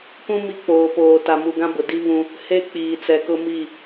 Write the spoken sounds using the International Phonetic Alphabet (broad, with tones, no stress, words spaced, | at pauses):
kũ˦ mi˦k͡poː˨poː˨ ta˨mu˨ɡã˦bʊ˨ di˦ βũ˦ | he˦ k͡piː˨t͡sɛ˨kʊ˦ mi˦˨